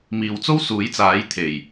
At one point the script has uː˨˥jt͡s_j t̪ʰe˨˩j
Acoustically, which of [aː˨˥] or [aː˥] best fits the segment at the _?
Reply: aː˨˥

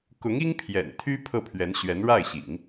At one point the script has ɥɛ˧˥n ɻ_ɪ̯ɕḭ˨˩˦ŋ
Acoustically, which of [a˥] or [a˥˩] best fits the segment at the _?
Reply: a˥˩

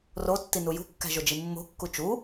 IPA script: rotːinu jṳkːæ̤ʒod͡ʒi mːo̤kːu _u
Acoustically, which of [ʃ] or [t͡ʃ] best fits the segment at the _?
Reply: t͡ʃ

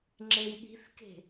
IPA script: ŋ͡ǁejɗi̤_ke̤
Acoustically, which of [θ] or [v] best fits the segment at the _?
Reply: θ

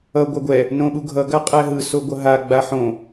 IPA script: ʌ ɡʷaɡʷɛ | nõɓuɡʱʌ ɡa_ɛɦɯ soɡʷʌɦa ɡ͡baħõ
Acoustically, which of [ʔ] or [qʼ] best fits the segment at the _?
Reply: qʼ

